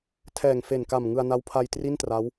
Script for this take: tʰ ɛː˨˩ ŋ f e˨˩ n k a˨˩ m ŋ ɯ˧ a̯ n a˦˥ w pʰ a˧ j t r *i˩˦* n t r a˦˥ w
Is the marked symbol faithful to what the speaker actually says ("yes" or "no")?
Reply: no